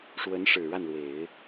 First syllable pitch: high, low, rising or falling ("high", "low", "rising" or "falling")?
rising